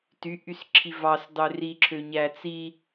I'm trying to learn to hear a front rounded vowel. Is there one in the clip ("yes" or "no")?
yes